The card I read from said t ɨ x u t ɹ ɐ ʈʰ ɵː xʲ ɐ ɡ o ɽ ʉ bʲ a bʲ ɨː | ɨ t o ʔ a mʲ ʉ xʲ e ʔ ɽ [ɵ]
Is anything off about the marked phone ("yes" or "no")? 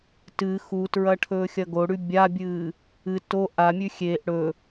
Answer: no